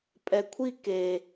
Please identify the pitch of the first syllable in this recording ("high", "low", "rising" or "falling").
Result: low